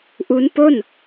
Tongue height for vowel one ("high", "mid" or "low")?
high